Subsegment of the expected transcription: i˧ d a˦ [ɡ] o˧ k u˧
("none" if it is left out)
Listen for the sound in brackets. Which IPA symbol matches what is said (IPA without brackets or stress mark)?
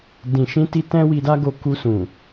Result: ɡ